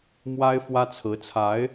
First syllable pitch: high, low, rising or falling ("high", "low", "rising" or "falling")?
high